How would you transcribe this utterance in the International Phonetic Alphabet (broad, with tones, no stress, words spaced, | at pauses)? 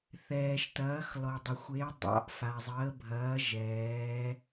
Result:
θɛː˩ʃtɐː˩˧x lɔ˩dˤə˩xʷe˩˧ dˤɑ̰˩˧ʔfa˩zˤəː˩˧bʱɐː˩˧ ʒɛː˩˧